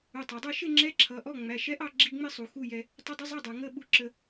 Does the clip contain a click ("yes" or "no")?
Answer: yes